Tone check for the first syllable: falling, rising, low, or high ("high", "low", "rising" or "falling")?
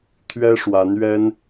high